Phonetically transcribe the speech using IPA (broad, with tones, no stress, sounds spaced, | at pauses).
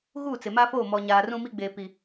ɣ uː˦˨ t͡s ɪ˨ m a˦ f oː˦˨ m ɔ˨ ɲ aː˨ r ũ˦ m i˦ ɡ͡b eː˨ p i˨